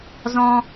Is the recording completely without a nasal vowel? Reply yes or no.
no